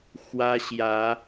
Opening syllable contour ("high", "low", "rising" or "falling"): high